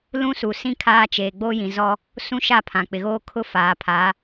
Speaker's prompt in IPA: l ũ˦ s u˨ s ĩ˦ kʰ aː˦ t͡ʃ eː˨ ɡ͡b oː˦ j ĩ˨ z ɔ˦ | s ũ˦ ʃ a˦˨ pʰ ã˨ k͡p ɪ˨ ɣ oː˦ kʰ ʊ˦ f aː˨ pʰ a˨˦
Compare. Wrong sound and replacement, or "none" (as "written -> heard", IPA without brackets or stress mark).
none